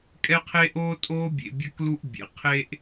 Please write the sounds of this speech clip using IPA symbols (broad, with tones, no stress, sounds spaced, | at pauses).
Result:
kʼ ɛ˦ qʰ eː˦ ʔ oː˦ tʼ oː˦ bʲ ḛ˨ bʲ a˦ k l u˦ ʔ bʲ ḛ˩ qʰ eː˦ ʔ